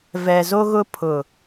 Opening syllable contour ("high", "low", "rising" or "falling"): low